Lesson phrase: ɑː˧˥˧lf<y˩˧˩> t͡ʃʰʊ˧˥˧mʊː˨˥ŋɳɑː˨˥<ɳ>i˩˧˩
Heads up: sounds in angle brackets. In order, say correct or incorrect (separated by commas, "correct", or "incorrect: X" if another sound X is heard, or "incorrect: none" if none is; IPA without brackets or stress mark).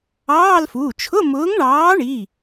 incorrect: u˩˧˩, correct